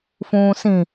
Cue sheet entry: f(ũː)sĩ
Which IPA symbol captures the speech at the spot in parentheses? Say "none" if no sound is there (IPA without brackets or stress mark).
ũː